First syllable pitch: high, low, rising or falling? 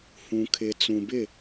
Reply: low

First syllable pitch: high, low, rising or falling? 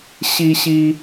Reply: high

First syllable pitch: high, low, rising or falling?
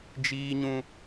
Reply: high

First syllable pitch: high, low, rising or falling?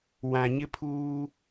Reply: low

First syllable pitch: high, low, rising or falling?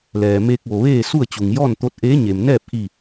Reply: low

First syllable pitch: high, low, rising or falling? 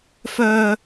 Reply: low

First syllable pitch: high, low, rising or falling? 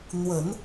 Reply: low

